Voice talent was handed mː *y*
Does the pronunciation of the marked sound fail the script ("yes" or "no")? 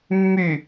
no